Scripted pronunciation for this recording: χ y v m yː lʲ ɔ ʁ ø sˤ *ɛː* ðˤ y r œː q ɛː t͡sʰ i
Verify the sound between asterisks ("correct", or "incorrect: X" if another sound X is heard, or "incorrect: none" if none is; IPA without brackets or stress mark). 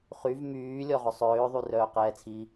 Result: incorrect: øː